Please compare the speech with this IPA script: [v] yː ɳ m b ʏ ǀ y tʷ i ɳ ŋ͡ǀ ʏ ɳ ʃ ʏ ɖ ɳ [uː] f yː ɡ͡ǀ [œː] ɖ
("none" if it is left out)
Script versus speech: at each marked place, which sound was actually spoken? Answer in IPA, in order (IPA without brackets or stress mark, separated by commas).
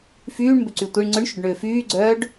f, ʏː, œː